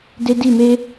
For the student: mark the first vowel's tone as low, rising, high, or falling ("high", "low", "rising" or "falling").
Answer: high